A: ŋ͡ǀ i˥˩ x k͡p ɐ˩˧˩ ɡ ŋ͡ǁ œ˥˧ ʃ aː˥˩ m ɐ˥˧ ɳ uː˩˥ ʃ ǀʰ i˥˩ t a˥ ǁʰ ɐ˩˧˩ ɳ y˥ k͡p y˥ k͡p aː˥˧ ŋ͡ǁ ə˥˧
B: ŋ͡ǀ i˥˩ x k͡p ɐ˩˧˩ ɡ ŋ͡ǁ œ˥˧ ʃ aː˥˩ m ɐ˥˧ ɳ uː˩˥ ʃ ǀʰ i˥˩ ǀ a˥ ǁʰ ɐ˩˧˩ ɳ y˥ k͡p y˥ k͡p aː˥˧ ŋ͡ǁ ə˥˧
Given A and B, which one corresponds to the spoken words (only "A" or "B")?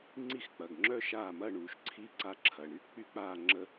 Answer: B